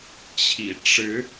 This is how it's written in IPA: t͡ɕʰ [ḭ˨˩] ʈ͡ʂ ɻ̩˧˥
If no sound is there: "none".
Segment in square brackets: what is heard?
ḭ˨˩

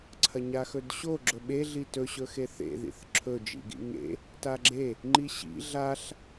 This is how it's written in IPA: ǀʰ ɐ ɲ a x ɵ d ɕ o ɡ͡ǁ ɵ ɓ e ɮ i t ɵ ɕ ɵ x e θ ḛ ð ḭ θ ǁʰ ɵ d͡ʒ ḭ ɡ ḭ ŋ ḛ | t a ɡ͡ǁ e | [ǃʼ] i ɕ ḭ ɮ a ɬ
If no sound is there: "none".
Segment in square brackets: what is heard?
ŋ͡ǃ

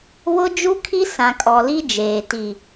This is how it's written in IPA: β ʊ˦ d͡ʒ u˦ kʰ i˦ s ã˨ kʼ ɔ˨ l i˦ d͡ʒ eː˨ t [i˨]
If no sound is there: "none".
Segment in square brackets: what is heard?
i˨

